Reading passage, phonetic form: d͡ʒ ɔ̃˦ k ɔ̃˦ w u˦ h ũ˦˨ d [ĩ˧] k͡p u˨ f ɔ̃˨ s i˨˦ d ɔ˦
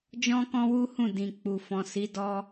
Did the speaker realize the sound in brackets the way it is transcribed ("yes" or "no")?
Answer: no